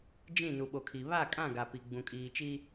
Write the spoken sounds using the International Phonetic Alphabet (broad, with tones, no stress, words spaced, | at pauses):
d͡ʒĩ˦˨ nu˨ ɓo˨kʰi˨ βa˦˨kʼã˦˨ɡa˨pi˨ ɡ͡bũ˨kʼiː˨t͡ʃi˦